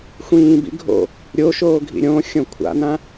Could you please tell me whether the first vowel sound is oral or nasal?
nasal